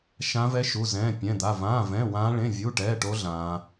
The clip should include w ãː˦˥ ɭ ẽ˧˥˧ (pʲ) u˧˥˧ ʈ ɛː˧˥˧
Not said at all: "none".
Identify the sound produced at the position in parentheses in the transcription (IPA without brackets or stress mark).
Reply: vʲ